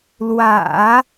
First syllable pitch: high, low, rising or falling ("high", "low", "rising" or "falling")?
low